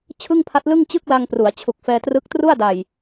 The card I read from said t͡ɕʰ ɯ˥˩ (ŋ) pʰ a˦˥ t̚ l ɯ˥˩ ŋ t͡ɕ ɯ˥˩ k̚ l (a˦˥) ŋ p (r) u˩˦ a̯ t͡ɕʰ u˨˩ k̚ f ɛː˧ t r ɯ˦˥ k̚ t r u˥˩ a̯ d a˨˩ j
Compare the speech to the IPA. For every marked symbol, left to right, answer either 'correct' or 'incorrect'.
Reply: correct, incorrect: a˧, correct

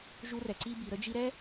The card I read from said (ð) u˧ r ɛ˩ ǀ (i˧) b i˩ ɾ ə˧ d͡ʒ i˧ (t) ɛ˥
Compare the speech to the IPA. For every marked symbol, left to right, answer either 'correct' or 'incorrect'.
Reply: incorrect: ʒ, correct, incorrect: ɾ

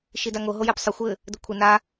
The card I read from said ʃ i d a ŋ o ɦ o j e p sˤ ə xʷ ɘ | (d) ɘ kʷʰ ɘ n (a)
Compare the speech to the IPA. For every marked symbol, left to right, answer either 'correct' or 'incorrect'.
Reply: correct, correct

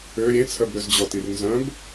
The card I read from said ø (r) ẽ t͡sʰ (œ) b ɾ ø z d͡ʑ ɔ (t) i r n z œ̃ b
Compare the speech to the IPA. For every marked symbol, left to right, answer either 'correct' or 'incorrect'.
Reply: incorrect: ɾʲ, correct, correct

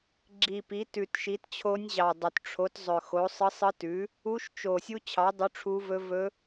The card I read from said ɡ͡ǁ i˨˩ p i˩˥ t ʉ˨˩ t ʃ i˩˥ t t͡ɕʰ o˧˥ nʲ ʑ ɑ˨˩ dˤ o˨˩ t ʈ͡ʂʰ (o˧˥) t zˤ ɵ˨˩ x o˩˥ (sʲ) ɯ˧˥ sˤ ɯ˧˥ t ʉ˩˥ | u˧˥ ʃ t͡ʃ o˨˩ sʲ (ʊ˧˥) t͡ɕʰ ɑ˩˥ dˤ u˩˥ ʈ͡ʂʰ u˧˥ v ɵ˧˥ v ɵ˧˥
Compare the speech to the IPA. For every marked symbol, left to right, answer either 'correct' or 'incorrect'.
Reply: incorrect: o˩˥, incorrect: sˤ, incorrect: u˧˥

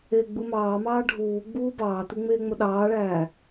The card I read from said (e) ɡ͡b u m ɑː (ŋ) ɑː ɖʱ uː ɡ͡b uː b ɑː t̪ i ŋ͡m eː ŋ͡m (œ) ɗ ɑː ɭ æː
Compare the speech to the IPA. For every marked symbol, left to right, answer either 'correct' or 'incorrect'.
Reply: correct, incorrect: m, incorrect: ɵ

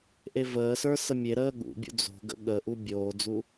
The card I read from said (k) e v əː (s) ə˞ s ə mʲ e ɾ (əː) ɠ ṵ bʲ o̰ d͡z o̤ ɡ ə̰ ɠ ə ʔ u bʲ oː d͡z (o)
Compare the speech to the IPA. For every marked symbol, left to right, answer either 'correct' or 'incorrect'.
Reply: incorrect: ʔ, correct, correct, incorrect: u

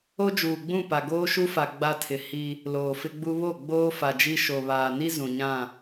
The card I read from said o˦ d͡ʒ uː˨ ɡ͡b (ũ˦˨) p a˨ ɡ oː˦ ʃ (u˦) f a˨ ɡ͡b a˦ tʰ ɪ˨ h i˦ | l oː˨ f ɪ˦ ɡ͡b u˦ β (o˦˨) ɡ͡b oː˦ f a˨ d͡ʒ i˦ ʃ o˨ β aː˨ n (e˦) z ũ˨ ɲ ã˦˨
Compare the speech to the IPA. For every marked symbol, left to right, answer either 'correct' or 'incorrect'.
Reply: correct, correct, correct, incorrect: i˦

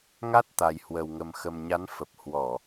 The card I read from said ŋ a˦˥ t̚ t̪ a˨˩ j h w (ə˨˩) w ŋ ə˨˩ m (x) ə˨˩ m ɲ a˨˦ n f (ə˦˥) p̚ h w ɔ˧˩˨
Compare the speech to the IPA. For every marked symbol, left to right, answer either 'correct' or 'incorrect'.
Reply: correct, correct, incorrect: ə˨˩

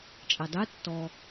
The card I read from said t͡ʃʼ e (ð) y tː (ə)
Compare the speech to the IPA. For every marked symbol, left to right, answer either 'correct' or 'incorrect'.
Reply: incorrect: dˤ, incorrect: ɔ

